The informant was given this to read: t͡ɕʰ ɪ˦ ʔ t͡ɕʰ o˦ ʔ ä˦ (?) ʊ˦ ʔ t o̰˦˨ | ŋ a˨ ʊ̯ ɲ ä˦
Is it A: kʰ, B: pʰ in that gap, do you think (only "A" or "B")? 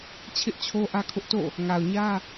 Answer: A